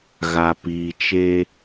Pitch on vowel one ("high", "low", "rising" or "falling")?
low